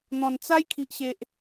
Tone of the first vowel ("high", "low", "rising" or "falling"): low